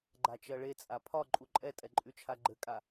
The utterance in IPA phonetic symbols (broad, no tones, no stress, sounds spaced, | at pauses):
ɡ͡ǃ a t͡ʃ ɜ ɭ e t͡sʼ a pʰ ɒ ǃʼ u ǃʼ ɛ tʼ ɛ ǃʼ y t͡ʃʰ a ɡ͡ǃ ɘ kʼ a